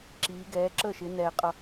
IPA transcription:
ǁ iː˩˧ ɡ ɛː˩˧ ǁ ə˥˩ ʃ ɪ˩˧ n ɛ˩ qʼ ʌ˩

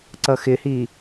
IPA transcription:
ǀ ʌ x ɪ h i

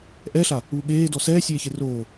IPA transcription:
ʔ ɛ ɬ a | uː ɠ eː d ɔ s ɛː sʲ eː ç e r oː

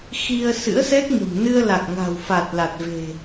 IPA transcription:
x i˧ ə̯ s ɨ̰˧˥ ə̯ s ɛ˦˥ k̚ ɲ ə̤˨˩ m n ɨ˧ ə̯ l a˨˩ k̚ ŋ a̤˨˩ w f a˨˩ t̚ l a˨˩ t̚ v e̤˨˩

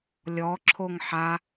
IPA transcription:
lʲ ɔ ǁʰ o ŋ ħ a

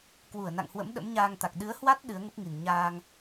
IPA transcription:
k w u˧˩ ə̯ n a̰˧˨ ŋ h w ə̰˧˥ m ɗ ə̰˧˥ m ɲ aː˧ ŋ t̪ a˨˩ k̚ ɗ ɨ˨˦ ə̯ h w a˦˥ t̚ ɗ ɨ˨˦ ə̯ ŋ ə˦˥ p̚ ŋ i˨˩ n ɲ aː˧ ŋ

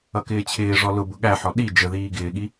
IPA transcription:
ʌ k ɪː t͡ɕʰ ɪː ʐ ɔ l ʊ b ʊ ɠ æ ħ ɔ ɗ i d͡ʒ ə ð iː ɡ ɪː ɠ i

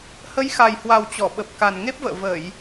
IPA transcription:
h ə˨˦ j x a˨˩ j h w a˨˩ w t͡ɕ ɔ˧˩ ɓ ə˨˩ p̚ k a˨˩ n ŋ e˦˥ p̚ v ə̰ː˧˨ v ə˧˩˨ j

